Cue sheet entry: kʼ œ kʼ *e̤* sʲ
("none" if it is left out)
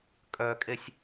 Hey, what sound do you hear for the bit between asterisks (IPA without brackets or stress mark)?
e